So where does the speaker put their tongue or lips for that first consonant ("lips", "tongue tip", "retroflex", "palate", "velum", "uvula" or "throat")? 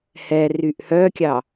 throat